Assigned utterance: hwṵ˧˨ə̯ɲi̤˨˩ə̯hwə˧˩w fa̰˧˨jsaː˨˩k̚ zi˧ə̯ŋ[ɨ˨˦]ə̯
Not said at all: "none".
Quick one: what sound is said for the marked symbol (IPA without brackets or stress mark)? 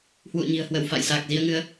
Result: ɨ˨˦